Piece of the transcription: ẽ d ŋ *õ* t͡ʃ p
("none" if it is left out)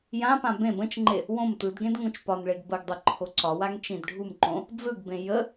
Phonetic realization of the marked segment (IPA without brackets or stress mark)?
õ